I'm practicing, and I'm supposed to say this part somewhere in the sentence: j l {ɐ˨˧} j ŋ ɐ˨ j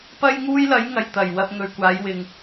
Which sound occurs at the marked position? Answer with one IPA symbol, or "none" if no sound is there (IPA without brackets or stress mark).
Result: ɐ˨˧